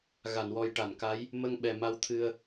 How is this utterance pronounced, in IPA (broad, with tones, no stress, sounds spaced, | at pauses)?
ɣ a˨˩˨ n w ɔ˨˩ j ʈ a˨˩˨ n k a˧˥ j | m ə˧ ŋ ɓ ɛ˨˩ m a˧ w t̪ʰ ɨ˧ ə̯